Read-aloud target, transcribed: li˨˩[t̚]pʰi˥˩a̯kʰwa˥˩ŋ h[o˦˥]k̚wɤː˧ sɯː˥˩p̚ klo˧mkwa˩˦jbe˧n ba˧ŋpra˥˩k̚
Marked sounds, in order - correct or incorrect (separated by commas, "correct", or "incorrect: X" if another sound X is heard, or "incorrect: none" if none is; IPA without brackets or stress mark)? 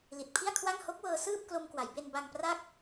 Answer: correct, correct